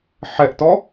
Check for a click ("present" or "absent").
absent